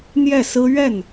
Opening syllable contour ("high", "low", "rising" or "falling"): falling